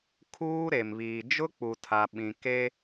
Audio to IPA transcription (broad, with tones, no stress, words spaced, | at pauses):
kʰuː˦ɾe˨mβiː˨ d͡ʒʊ˦k͡pu˨tʰa˨ ɓĩ˨ ke˦